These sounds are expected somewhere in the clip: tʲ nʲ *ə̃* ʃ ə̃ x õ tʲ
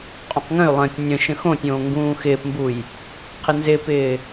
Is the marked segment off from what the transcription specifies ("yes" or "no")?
no